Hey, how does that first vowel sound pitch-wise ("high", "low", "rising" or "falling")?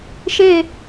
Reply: falling